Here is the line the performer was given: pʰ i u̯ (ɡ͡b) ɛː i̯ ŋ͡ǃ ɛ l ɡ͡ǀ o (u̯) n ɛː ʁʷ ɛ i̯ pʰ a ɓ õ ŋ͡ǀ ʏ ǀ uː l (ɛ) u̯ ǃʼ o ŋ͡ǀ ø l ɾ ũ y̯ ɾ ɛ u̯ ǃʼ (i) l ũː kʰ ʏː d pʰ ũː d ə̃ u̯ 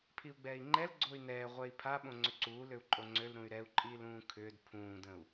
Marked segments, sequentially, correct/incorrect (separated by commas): correct, incorrect, incorrect, incorrect